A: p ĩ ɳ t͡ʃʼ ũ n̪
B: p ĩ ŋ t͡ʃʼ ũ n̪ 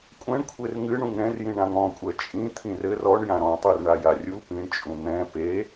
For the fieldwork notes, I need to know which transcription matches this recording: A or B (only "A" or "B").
A